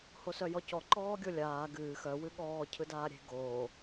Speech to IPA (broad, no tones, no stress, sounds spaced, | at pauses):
h o s œ j ɔ c ɔ ǃ ɔː ɡʲ o lʲ aː ɡ ɨː x œ w ɨ ɠ ɔː cʰ ɯ d aː ɾʲ e̤ ɡ oː